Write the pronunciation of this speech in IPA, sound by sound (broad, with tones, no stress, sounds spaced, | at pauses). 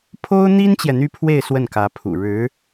pʰ o˥ ʊ̯ n̪ i˥ n t͡ɕ j ɛ˨ n̪ y˥ pʰ w e˥˧ ɪ̯ s w ə˥˩ n k ä˧˥ pʰ ṵ˨˩ ɻ ɻ̩˧˥